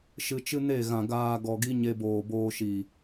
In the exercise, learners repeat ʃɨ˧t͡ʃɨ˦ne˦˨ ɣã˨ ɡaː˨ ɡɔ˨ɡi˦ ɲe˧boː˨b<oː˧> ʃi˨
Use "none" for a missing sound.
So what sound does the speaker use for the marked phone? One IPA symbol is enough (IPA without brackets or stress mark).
oː˧